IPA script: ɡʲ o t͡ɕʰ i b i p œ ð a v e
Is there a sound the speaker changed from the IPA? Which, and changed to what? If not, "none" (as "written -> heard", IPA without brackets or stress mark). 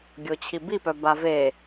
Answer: ð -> b